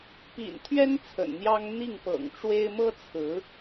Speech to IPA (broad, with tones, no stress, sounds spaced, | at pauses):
p ḭ˨˩ n t̪ʰ ɥ ɛ˥ n t͡sʰ ə̰˨˩ n n̪ j ɑ˥ ŋ n̪ i˥˩ ŋ p ɤ̰˨˩ ŋ ʈ͡ʂ w e˥ ɪ̯ m ɤ˥ t͡sʰ ɹ̩˧˥